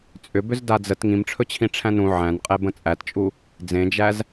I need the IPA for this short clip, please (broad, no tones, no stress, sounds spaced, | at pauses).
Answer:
t͡sʼ ʏ b ʏ z d a d͡z ə t ŋ ĩ m ʈ͡ʂʰ ɵ t͡ɕʰ ĩ ʈ͡ʂʰ æ̃ n ũ ʕ æ̃ n qʼ e b ə̃ t͡sʼ æ t t͡ʃʼ u | d͡z ẽ d͡ʒ æ z